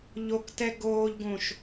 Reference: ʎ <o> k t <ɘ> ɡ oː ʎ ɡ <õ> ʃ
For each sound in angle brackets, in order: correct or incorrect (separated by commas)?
correct, incorrect, correct